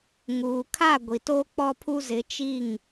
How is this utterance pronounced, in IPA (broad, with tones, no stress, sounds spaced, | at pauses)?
ŋ uː˨ kʰ a˦˨ ɡʷ i˨ t o˦ k͡p ɔ˦ pʰ u˦ z ɪ˨˦ t͡ʃ i˦˨ ŋ